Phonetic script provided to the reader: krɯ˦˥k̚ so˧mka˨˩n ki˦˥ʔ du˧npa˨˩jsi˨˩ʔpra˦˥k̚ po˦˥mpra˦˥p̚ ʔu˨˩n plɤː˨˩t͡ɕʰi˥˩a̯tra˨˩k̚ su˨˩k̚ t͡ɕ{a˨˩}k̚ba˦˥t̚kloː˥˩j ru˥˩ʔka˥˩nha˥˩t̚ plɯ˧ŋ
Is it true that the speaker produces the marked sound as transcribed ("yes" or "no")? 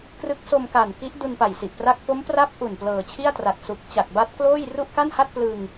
yes